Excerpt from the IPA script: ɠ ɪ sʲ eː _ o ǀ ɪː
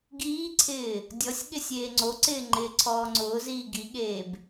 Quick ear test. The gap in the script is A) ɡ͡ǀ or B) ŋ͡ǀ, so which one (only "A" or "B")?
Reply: B